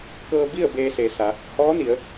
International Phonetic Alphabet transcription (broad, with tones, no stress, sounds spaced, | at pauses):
k ɤː˧ b i˥˨ ə̯ b eː˧ s e˩˧ s a˩˧ | h ɔː˧˥ n i˩˧ ə̯